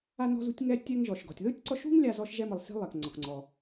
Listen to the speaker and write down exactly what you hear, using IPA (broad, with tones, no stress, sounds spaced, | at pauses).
a˧ n ɔ̤˧ z ṳ˧ tʲ ŋ ɛ˧ tʲ ɛ˧ ŋ ʒ ɔ˩ ʃ ɡ ɔ̤˩ tʲ ð ɯ˥ tʲ ǀ ɔ˧ ʃ ṳ˥ ŋ lʲ a˧ z ɔ˧ ʃ ʒ ɛ˧ m ɯ˩ lˠ s i̤˧ lˠ ɛ˩ k ŋ͡ǀ ɒ˩ k ŋ͡ǀ ɔ˩